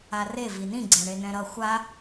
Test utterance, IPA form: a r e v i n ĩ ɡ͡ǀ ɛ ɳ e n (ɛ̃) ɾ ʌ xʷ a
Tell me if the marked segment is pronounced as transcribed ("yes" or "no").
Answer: yes